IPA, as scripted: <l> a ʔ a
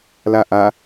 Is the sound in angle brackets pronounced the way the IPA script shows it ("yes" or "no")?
yes